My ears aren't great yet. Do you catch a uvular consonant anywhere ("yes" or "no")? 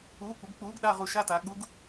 yes